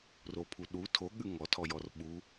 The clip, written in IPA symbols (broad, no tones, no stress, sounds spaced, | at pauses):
r o pʰ u ɗ u tʰ o ɠ ʉ ŋ ɔ tʰ ɔ j ɔ r ɓ u